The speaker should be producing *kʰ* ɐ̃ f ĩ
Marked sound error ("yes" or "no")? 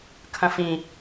no